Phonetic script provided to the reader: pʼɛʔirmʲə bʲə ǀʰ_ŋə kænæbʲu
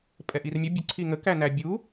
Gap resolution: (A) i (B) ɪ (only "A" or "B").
A